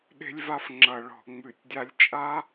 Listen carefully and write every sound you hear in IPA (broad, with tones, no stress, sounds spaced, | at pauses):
ɗ e̤˥ lʲ v a˥ f ŋ͡ǁ ʌ˧˩˧ ɭ ɔ̤˧˩˧ ŋ͡m ʉ˧˩˧ tʲ dʲ a˥ lʲ t͡ʃʼ a˥